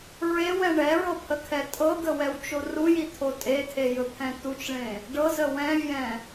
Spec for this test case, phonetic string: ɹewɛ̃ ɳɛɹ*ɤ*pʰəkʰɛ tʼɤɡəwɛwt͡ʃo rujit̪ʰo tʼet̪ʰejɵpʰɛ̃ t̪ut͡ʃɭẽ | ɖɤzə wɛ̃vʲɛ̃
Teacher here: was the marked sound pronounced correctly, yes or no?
yes